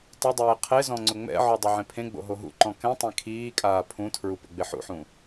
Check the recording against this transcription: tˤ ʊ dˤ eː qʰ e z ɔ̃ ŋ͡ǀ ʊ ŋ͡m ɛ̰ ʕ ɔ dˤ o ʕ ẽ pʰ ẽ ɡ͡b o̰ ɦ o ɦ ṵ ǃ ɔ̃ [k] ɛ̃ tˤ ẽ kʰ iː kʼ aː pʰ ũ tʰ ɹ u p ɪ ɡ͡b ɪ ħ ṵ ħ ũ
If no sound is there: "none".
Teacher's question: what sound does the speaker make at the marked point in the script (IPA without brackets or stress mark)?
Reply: k